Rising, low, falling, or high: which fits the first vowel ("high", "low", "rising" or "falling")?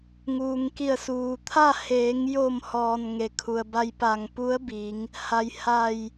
low